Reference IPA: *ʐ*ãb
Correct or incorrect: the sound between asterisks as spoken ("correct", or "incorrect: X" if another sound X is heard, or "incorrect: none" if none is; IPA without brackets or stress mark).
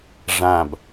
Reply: correct